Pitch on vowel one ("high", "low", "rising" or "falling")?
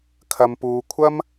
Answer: low